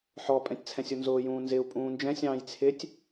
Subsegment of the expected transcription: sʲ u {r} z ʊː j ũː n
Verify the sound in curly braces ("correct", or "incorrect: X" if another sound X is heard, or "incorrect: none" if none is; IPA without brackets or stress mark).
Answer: incorrect: n